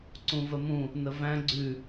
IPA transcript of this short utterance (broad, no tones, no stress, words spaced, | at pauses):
ǀũvəmũ | nəvæ̃ ɡ͡ǀʉ